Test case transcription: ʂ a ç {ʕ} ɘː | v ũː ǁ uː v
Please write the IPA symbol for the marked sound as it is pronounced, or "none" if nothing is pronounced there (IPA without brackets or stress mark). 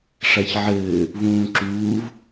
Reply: ʕ